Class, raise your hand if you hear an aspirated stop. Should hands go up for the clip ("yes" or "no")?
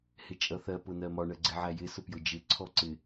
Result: yes